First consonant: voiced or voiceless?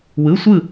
voiced